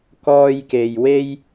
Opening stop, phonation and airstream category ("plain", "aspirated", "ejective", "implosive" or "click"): plain